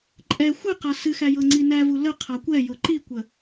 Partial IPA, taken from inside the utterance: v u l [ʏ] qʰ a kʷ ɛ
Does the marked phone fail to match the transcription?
yes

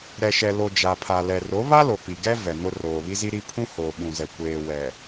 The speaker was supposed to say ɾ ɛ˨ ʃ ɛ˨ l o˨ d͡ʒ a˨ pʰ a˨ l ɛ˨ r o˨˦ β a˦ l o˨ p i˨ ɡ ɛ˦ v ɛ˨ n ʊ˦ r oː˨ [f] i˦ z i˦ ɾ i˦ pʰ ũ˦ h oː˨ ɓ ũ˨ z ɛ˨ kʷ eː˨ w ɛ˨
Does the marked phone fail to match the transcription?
yes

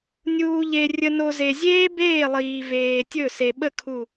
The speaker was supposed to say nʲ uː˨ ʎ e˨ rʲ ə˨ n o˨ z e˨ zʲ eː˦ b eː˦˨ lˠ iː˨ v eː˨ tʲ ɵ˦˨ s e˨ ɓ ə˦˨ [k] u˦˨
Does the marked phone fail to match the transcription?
yes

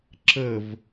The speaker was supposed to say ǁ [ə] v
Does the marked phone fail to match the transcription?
no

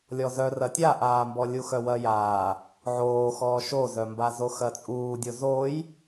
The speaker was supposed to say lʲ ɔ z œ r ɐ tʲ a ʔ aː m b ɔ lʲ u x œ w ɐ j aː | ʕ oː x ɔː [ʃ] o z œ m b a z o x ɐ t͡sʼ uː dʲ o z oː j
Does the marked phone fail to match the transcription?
no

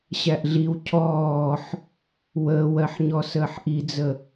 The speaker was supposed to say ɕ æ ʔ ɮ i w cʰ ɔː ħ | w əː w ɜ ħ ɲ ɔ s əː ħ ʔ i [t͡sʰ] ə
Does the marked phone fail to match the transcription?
yes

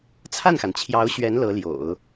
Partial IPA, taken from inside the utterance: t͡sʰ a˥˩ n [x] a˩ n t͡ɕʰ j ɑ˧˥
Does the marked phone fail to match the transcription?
no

